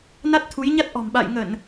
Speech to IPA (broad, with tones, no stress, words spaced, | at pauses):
na˦˥t̚t̪ʰu˨˦jɲa˦˥t̚ ʔɔ̤˨˩mɓa̰ː˧˨j ŋə˧˩˨n